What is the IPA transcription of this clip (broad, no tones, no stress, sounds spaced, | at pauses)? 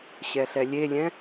ɕ ɛ ɬ ɛ lʲ e lʲ ɛ̃